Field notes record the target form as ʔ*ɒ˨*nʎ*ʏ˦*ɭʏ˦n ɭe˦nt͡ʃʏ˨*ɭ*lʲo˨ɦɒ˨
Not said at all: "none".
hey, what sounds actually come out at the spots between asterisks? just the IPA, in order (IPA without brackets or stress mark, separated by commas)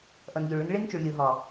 ʌ˨, ʏ˨, ɭ